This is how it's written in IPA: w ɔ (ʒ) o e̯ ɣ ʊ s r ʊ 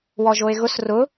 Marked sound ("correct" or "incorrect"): correct